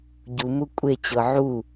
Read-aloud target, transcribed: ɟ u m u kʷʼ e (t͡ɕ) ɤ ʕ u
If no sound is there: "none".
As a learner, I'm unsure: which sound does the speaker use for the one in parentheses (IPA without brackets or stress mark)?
t͡ɕ